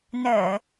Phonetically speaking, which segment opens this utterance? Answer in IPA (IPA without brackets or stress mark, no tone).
n